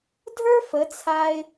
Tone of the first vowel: high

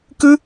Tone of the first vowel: high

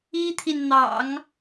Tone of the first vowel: high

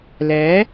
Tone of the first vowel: rising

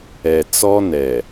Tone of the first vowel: low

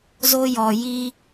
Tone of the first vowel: high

